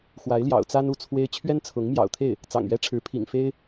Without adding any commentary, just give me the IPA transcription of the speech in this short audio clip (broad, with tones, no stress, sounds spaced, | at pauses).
x w a˧˥ ɪ̯ l j ɑ̰˨˩ ʊ̯ t͡s a˥ n u˧˥ t͡sʰ w e˥ ɪ̯ t͡ɕʰ ɥ ɛ˥ n t͡sʰ ʊ˧˥ ŋ m j ɑ̰˨˩ ʊ̯ t̪ʰ e˥˩ ɪ̯ | t͡s ɑ̰˨˩ ŋ ɥ ɛ˥ ʈ͡ʂʰ ɻ̩˧˥ pʰ ḭ˨˩ ŋ f e˥ ɪ̯